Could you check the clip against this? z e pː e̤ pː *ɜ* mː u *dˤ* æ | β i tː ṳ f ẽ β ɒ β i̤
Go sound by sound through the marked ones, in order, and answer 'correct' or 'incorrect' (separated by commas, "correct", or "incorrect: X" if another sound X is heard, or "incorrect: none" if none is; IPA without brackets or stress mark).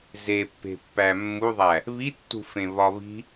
incorrect: æ, incorrect: ðˤ